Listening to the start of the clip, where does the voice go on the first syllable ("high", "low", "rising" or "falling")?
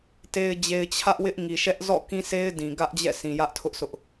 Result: low